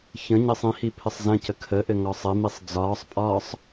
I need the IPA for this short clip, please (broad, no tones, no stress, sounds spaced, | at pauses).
ç ə̃ ɲ ə sˤ ĩ h i pʰ ɘ sˤ z ə̃ c ə kʰ ə ʔ ɘ ŋ ɒ sˤ ɘ m i sˤ d͡z ɒː sˤ pʼ ɒː sˤ